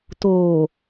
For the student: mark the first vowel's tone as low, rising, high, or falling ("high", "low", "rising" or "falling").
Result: low